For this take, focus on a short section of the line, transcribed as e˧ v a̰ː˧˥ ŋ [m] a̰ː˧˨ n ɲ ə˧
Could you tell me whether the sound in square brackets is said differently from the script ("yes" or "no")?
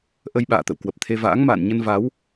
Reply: no